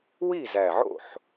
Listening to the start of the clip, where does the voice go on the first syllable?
falling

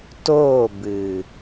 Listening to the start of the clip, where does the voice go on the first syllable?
falling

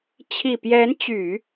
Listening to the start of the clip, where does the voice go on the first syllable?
low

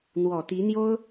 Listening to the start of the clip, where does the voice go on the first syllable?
low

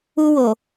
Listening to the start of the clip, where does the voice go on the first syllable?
high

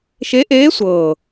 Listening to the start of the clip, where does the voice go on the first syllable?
rising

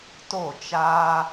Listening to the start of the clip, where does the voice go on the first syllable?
falling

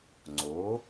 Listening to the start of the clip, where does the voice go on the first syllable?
rising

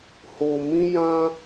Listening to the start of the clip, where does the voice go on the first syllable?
low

